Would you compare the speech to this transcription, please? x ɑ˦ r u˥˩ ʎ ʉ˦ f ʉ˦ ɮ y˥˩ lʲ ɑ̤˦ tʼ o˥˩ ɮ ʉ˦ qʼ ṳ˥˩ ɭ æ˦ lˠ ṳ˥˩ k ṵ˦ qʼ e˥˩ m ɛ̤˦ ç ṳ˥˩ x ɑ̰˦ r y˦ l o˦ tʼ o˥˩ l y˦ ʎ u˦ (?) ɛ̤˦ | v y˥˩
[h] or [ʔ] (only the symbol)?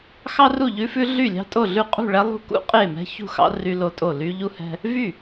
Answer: h